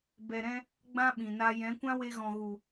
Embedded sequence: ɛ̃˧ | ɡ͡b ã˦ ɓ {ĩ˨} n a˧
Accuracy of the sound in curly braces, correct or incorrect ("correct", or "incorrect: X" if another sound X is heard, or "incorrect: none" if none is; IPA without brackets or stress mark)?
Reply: correct